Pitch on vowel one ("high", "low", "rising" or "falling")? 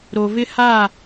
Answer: low